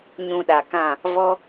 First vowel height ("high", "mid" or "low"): high